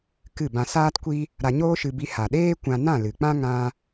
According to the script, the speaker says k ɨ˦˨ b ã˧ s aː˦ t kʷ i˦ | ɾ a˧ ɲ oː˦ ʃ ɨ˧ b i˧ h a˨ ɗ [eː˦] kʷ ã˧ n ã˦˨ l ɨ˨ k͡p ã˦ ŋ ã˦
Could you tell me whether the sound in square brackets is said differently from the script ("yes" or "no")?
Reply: no